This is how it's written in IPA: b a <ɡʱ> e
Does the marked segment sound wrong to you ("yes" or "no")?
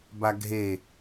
no